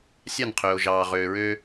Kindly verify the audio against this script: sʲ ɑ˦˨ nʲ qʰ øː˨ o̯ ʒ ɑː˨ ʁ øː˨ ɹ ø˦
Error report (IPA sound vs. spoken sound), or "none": nʲ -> n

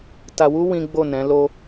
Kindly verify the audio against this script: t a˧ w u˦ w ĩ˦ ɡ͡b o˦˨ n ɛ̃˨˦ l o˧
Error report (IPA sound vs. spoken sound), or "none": none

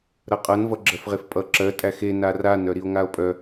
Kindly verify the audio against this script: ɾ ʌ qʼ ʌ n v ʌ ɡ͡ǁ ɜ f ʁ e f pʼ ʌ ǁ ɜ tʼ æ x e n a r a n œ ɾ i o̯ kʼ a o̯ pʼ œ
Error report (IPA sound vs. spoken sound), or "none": kʼ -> ŋ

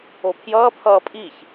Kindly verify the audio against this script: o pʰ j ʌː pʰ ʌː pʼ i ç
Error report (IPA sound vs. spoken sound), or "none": none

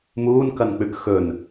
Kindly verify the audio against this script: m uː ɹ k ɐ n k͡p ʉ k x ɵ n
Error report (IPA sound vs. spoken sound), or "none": ɹ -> n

